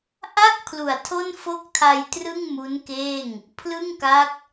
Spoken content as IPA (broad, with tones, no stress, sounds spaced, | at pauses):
ʔ a˥˩ k̚ pʰ l u˩˦ a̯ tʰ o˥˩ n f o˥˩ k̚ tʰ a˧ j t r ɯ˥˩ ŋ m u˦˥ n k eː˥˩ ŋ | pʰ l ɯ˥˩ ŋ k a˦˥ k̚